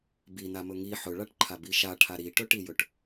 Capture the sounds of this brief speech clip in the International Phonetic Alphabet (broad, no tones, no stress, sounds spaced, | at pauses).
b i n a m ɵ ŋ i ħ ɵ ɭ a ʈ ǃʰ a b i ʃ a ʈʰ a ɾ i ʈ ɵ ʈ i j ɵ ʈ